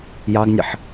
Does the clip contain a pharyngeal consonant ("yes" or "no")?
yes